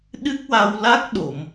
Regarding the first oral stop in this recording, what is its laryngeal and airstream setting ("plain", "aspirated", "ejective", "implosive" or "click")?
implosive